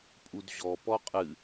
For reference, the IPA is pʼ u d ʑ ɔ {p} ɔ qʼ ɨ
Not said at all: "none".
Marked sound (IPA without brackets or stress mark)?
p